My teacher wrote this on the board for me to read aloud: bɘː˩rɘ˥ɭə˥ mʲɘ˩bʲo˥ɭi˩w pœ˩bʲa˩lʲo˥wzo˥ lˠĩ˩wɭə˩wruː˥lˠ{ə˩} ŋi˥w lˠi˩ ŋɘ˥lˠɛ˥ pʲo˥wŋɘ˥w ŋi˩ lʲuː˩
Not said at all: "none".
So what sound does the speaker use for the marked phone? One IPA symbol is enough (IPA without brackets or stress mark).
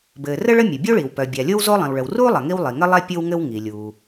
ɐ˩